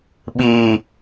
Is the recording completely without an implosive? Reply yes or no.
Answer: no